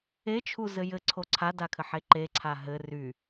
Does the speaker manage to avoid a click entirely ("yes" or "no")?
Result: no